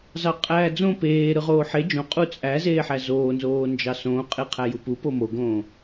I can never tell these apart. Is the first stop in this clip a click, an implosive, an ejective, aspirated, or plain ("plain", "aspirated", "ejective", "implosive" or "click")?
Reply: ejective